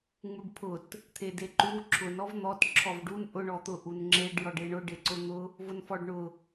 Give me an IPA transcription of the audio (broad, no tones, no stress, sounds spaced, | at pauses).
ŋ͡m u ɖ pʰ ʊ t | t̪ʰ e d e ǃ u ǁʰ ʊ n ɔ v n̪ ɔ t ǁʰ ɔ v ɖ u n ʔ ʊ ɳ ɔ t̪ ʊ ʔ u n ŋ͡ǁ e ɖ j ɔ ɖ e ɳ ʊ ɖ e ǀ ʊ n̪ ʊ | v ʊ n f ɔ ɖ ɳ ʊ